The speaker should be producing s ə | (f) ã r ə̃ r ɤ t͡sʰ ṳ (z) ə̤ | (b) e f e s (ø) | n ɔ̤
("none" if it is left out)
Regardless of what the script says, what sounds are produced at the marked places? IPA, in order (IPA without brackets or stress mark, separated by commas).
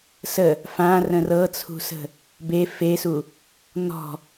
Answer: f, s, b, u